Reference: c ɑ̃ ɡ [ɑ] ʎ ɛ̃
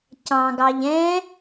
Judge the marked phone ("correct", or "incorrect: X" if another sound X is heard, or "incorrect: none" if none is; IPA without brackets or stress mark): correct